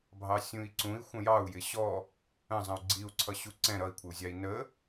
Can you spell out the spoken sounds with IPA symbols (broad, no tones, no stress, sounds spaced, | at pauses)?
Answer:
bʱ ɑ sʲ ũ i̯ ǀ ũ i̯ xʷ ə̃ j ɑ u̯ j ɪ ɕ ɔ | ə̃ zˤ ə̃ u̯ ɡ͡ǀ i u̯ ǀʰ ʌ ɕ u ǀ ɛ̃ ɾ ʌ i̯ kʷʰ ɪ u̯ zʲ ɑ i̯ n ə